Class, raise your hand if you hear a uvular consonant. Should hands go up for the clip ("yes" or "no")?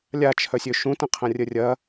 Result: yes